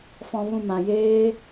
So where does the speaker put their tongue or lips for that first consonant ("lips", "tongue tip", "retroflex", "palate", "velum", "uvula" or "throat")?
lips